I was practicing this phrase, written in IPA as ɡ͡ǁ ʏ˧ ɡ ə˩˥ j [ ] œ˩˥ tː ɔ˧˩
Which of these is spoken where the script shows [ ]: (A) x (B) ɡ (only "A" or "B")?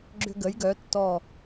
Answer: B